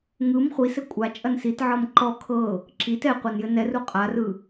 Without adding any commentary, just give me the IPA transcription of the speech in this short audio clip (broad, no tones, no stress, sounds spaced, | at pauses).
ŋ ɯ m χʷ i s ɘ kʷʼ a t͡ʃʼ ɐ n s i t ʕ ɤ m ǃ ɔ kʰ ɤ | ǁ i t ɛ qʷ ɤ n j ɘ n ɛ r u qʼ a r ɯ